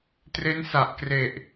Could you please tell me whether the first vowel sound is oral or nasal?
oral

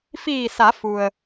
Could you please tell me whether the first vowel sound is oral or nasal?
oral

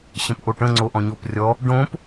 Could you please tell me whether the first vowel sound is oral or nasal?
nasal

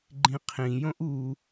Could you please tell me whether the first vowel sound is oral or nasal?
nasal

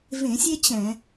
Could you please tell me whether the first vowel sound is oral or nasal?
nasal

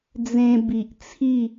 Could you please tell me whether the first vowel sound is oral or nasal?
nasal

